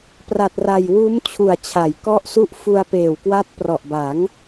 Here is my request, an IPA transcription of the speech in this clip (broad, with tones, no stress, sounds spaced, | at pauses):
p r a˨˩ t̚ r a˨˩ j w uː˦˥ m t͡ɕʰ u˨˩ a̯ t͡ɕʰ a˩˦ j k ɔ˦˥ ʔ s u˦˥ ʔ f u˧ a̯ p eː˨˩ w k w a˦˥ t̚ p r ɔ˨˩ ʔ b a˩˦ ŋ